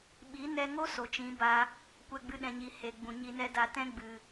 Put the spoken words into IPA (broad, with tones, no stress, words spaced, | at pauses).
ɓi˨˦ nɛ˧ŋo˦ so˨t͡ʃĩ˨˦ ba˧ | kʷɛ˧ɡ͡bɨ˧ɗɛ̃˨ɲi˨ he˨ɡ͡bũ˨ ɲi˧nɛ˦da˧ tɛ̃˦ɡ͡bɨ˨